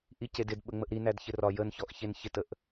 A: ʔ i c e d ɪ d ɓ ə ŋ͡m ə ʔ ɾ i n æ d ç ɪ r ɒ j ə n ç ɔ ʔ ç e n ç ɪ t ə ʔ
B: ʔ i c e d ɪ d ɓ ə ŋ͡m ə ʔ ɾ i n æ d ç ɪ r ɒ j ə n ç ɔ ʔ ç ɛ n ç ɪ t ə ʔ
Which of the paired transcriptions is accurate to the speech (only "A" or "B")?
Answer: A